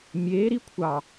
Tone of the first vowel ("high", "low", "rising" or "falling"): rising